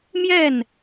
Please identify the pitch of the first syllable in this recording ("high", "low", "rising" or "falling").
falling